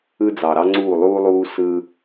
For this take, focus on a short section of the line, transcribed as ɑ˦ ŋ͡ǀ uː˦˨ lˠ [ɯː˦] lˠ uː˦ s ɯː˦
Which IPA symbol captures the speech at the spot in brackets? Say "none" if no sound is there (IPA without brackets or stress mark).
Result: uː˦